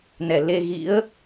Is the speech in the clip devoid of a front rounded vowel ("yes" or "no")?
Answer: yes